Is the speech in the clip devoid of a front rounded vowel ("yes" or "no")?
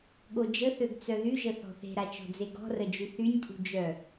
no